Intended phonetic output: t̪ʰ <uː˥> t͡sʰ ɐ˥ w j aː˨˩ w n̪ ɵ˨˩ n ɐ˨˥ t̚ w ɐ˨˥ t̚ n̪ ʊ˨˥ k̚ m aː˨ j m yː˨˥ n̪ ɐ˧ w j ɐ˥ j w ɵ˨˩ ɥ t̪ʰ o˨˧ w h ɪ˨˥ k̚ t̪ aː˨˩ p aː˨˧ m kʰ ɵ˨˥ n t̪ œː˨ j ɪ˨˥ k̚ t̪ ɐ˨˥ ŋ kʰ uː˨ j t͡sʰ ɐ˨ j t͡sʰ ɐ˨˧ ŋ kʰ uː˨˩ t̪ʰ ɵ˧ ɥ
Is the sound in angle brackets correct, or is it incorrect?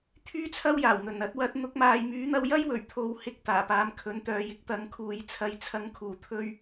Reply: incorrect: yː˥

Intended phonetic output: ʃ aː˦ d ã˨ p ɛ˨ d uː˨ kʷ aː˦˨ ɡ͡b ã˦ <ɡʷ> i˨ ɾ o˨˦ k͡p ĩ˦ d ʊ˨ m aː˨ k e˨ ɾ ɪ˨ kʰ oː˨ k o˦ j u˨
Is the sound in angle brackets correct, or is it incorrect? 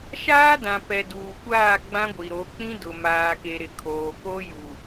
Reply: correct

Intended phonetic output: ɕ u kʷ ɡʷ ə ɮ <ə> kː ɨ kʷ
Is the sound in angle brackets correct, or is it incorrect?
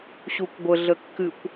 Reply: correct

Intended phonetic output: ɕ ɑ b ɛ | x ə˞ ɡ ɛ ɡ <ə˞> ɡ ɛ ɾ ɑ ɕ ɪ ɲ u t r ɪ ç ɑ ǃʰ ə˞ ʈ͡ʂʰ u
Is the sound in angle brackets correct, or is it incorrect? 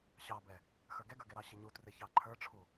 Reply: correct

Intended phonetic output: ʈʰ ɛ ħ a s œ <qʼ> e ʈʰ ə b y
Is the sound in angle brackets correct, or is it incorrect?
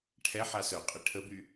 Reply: correct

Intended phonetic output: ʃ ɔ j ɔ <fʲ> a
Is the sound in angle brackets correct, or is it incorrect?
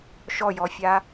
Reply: correct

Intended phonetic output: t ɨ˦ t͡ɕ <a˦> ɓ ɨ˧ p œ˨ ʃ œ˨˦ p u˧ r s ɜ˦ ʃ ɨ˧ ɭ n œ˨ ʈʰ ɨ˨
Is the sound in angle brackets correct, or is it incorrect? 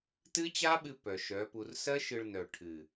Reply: correct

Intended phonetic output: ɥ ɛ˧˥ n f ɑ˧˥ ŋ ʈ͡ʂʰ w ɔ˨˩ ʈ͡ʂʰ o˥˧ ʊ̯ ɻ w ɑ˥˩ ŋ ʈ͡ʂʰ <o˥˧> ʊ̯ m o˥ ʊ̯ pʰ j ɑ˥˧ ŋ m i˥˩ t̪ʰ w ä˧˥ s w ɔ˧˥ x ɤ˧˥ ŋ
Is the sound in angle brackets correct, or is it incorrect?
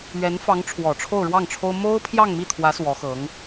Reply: incorrect: o˥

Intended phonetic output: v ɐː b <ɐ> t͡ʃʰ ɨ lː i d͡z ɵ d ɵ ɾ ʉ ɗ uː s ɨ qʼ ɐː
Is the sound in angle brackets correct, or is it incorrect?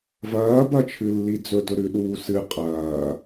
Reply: correct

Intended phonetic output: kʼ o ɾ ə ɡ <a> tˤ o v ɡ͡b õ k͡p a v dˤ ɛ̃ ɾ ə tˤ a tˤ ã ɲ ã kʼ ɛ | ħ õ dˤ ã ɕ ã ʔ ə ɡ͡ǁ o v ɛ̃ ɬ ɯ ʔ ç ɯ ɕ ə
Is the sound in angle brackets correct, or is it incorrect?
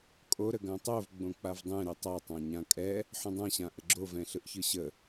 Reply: incorrect: ã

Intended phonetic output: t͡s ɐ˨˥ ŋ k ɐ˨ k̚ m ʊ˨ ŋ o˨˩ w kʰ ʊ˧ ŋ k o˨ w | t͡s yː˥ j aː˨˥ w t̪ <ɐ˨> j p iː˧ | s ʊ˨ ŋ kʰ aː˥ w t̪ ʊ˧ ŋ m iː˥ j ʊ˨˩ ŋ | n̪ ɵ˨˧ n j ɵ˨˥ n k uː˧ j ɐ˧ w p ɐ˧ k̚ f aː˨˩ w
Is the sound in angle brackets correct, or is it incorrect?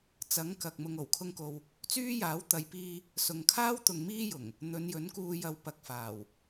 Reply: correct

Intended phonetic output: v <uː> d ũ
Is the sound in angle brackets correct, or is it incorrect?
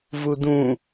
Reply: incorrect: u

